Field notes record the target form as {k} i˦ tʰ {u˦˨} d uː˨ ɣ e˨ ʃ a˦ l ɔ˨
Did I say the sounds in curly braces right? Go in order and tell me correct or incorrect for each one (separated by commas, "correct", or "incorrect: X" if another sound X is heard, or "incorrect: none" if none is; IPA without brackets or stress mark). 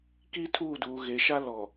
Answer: correct, incorrect: uː˦˨